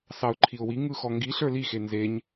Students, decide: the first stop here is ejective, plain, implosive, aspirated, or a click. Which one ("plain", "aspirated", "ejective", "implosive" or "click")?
click